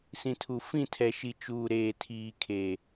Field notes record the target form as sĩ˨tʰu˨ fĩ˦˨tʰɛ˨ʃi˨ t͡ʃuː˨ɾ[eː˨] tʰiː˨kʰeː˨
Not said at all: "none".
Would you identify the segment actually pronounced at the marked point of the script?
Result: eː˨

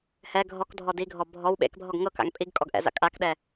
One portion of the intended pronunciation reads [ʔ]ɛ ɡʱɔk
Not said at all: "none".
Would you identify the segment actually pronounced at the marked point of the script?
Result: h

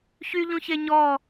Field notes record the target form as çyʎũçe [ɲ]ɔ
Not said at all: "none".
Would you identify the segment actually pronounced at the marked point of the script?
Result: ɲ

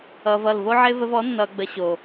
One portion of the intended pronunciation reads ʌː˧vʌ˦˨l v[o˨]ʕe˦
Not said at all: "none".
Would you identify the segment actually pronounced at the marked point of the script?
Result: o˦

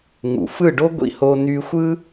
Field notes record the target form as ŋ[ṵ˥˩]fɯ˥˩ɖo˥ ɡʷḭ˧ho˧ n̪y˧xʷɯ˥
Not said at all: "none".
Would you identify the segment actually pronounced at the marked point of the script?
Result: ṵ˩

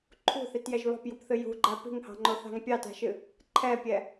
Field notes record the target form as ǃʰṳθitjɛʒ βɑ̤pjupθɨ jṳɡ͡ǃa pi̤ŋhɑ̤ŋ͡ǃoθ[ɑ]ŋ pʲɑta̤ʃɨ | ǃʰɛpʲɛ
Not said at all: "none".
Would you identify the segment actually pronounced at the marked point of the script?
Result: ɑ̤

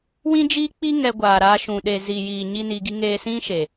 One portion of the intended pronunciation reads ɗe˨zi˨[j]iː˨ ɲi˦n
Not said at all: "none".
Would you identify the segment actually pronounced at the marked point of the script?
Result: j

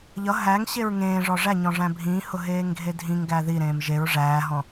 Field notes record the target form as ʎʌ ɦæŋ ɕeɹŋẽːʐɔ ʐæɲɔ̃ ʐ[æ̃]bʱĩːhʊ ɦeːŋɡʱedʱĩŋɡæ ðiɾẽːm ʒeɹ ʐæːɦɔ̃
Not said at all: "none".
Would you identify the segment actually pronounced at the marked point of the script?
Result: æ̃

